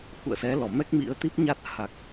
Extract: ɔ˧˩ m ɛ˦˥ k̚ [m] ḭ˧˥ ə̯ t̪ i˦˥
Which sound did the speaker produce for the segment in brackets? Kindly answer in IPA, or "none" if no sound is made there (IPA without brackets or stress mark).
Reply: m